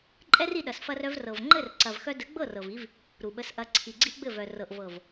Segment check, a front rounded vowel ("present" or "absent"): present